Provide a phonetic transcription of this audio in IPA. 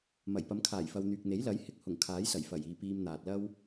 m ɐ˨˩ j p ɐ˨˧ m kʰ aː˨˩ j f ɐ˨ w n̪ yː˨ k̚ n̪ e˨˥ j l ɐ˨˥ j h ɪ˨ k̚ h ʊ˨˩ ŋ kʰ aː˨˥ j s ɐ˨˩ j f ɐ˨˩ j iː˨ p iː˧ m n̪ aː˨ t̚ l ɐ˥ w

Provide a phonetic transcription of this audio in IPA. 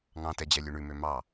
ŋ ɑ̃ t ɛ d͡ʑ ɛ lʲ ʉ ɳ ʉ m ø m ɑ

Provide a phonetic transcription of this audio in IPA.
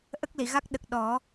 ʔ ə˦˥ k̚ l i˨˩˨ ɣ a˦˥ k̚ ɗ ə˨˩ k̚ ɗ ɔ˨˩˦

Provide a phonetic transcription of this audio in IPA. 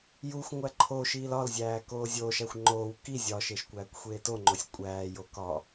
j u xʷ ŋʷ æ ǃʰ o ʃ iː l ɒ l zʲ æː k oː zʲ oː ʃ æ xʷ ŋ͡ǃ oː w k i zʲ ɒ ʃ e ʃ kʷ æː kʷ xʷ eː t o ŋ͡ǃ o sʲ kʷʼ æː j o k ɒ

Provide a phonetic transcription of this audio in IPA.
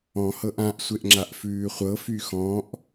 ɔ̃ h ɤ ʔ ã ʔ sʷ e ʔ ŋ͡ǁ a ʔ f ʉː χʷ ɤ f y x ɔ̃ ʔ

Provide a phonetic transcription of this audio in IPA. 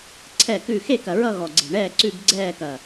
ǀʰ ɛ˦˨ k ʉ˦˨ x e˦˨ k ɐ˨˩ ɹ ʌ˦˨ ɣ ɔ˨˩ ɡ͡ǀ e̤˨˩ ɳ ɛː˦˨ ǀ ʉ˦˨ b ɡ͡ǀ ɛː˦˨ k ɐ˨˩

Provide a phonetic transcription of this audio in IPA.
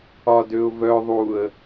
ɒ d ø ʊ̯ v œ ðˤ u ə̯

